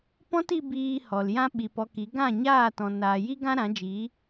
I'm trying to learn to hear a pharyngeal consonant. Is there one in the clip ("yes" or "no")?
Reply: no